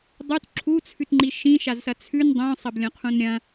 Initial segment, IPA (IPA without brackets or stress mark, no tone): dˤ